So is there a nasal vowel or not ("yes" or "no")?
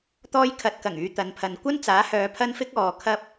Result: no